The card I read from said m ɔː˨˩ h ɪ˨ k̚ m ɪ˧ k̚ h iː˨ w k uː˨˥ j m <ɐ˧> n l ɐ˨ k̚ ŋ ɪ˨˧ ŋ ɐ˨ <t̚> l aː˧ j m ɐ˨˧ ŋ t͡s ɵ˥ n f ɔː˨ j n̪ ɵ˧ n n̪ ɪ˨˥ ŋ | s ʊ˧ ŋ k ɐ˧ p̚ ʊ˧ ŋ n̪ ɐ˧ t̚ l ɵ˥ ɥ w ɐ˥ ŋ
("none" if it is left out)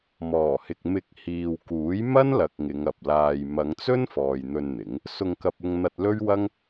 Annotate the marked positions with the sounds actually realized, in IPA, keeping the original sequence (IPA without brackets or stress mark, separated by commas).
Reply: ɐ˥, p̚